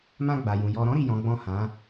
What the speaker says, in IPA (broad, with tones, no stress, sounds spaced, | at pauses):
m ã˧ ɡ͡b a˨ j ũ˨ j ɔ˨ ɾ ɔ̃˨˦ ɾ i˦˨ j ɔ̃˨˦ ɡ͡b ɔ̃˦˨ h ã˨˦